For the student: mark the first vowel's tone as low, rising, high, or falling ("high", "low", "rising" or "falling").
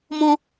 high